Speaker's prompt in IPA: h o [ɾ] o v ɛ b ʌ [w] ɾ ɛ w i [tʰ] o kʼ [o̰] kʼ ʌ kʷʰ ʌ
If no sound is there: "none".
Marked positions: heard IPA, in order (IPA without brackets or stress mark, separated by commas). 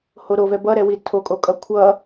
ɾ, none, tʰ, o